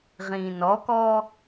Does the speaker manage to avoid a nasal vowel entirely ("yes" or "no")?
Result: no